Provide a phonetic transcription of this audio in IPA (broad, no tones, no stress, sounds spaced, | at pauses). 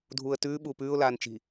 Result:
dʱ uː ə̯ t ʉː ɓ uː p ʉː ʊ̯ l aː n t͡ʃ i̤